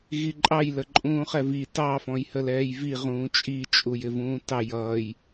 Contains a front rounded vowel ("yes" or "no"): no